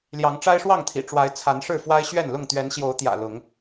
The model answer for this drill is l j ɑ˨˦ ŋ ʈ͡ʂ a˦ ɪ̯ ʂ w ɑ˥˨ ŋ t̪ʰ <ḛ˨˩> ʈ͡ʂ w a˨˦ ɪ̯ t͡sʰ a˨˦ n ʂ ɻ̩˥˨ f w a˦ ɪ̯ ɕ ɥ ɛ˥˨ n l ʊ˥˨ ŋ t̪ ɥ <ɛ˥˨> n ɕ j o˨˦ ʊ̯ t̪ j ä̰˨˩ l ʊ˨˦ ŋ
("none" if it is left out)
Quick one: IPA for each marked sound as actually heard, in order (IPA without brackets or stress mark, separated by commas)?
ḭ˨˩, ɛ˨˦